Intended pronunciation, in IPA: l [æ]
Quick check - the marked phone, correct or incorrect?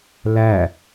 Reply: correct